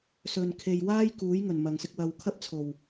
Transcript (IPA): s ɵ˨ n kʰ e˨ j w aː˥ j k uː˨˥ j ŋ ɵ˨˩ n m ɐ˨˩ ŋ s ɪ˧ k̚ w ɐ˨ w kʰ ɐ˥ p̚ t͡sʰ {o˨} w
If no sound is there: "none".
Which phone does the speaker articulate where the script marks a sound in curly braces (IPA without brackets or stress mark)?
o˨˩